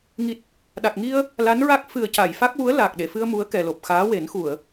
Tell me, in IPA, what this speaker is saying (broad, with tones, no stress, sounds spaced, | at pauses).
ŋ i˨˩ t̚ | ɗ a˨˩ k̚ ŋ i˧ ə̯ | l a˧˥ n ɹ a˦˥ k̚ f ɨ˨˩ ə̯ c a˨˩˨ j f a˦˥ k̚ w u˧˥ ə̯ l aː˨˩ k̚ ɗ e˨˩˨ f ɨ˧ ə̯ m u˧˥ ə̯ k ɛ˨˩ l o˨˩ p̚ x aː˧˥ w e˨˩˦ n x u˨˩˨ ə̯